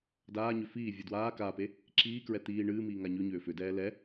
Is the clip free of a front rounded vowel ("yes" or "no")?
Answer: no